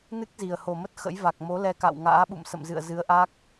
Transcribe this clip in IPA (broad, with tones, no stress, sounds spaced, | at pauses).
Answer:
n ɨ˦˥ k̚ z i˨˩ ə̯ h o˨˩ m ə˦˥ t̚ x ə̰˧˥ j v a˨˩ k̚ m o˨˦ l ɛ˧ k a̰˧˨ w ŋ a̰ː˧˥ ɓ ṵ˧˨ m s ə̰˧˨ m z ɨ̰˧˨ ə̯ z ɨ˨˦ ə̯ ʔ a˦˥ k̚